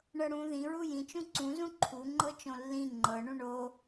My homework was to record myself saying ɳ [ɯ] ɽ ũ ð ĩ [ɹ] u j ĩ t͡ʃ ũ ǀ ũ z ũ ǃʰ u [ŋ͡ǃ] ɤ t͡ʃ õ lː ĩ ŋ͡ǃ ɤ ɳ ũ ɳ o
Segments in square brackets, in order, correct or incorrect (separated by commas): incorrect, correct, correct